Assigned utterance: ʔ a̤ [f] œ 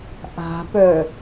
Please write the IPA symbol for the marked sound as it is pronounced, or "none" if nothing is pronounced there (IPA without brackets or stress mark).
p